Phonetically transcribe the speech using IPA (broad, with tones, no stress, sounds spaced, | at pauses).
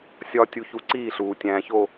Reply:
sʲ ɒ˨ tʲ u˨ ç u˨ ǀ iː˦˨ ɬ uː˨ tʲ æ̃ː˨ ç o˨